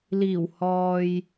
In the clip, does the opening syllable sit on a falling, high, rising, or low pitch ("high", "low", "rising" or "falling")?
low